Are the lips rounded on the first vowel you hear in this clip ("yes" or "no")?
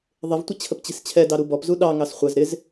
no